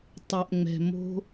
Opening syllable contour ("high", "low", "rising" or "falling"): low